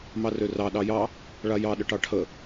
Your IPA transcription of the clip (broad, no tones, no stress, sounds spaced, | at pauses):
m ɑ r ø r ɑ ɗ ɑ j ɑ | ɭ a j ɑ ɗ ə ʈ ɑ ʈʰ ə